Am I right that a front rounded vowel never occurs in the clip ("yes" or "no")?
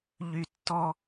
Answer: no